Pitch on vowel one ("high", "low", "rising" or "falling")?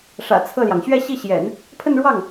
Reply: low